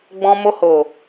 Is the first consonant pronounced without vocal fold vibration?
no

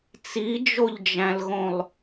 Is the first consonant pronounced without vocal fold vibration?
yes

